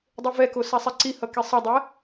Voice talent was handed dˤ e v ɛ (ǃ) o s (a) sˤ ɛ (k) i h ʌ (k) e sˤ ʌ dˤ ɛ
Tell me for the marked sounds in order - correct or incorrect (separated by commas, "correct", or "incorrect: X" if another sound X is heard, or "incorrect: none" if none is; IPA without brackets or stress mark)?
incorrect: k, correct, incorrect: ǀ, correct